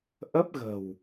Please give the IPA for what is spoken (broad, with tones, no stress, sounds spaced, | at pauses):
ʔ ə˦˥ p̚ ɣ ə̤˨˩ w